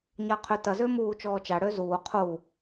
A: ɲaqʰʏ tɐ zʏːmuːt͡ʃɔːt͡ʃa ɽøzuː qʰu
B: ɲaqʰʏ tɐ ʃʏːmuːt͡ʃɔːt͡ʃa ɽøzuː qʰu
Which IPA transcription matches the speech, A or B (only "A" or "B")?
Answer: A